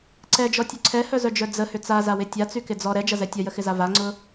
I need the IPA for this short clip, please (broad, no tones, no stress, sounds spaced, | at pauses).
ǀ ɛ d͡ʒ ɔ tʲ ʊ ǀʰ ɛ h œ z œ d͡ʒ œ d͡z ə h ʏ t͡s a z a w ɪ tʲ a t͡s y k ɪ d͡z ɔ ɾ ɛ d͡ʒ ɐ z ɛ tʲ ɐ j ə x ɪ z a v a ŋ͡ǀ ʊ